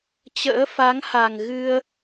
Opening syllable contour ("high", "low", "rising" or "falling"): rising